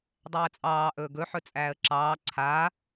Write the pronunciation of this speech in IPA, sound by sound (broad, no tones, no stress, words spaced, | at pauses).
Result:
dˤæːt͡sʼɑː ʔɵːɡɵ ħɵt͡sʼæːə̯ǁɑː ǀʰaː